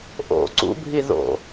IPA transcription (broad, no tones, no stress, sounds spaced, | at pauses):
ʔ o̰ ǀ ṵ bʱ i ð o̰